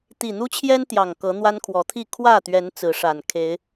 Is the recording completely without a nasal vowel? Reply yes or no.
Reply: yes